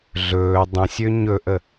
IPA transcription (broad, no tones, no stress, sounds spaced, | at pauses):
ɮ ɵː dˤ ə̃ sʲ ø ɲ ɵ ʔ ə